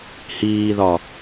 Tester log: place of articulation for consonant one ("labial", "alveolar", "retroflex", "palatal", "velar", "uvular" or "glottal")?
glottal